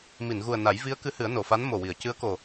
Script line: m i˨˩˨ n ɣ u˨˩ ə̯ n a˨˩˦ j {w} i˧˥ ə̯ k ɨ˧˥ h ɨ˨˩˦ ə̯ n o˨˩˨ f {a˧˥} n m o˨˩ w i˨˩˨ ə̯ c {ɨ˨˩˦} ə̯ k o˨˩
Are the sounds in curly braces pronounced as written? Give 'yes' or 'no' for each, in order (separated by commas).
no, yes, no